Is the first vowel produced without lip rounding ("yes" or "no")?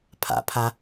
yes